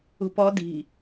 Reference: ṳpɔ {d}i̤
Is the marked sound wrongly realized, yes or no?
no